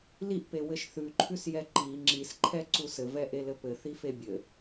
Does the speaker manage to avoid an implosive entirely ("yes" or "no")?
yes